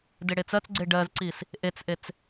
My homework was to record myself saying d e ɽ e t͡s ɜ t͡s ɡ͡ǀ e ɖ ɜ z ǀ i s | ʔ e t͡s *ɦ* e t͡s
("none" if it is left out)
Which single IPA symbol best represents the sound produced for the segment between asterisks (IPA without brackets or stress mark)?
ʔ